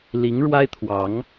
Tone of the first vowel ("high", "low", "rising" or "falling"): rising